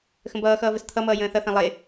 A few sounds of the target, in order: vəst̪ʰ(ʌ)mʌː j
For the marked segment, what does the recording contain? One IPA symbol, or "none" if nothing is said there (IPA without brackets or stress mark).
ʌ